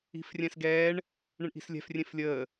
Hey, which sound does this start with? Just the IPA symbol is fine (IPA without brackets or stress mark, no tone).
i̤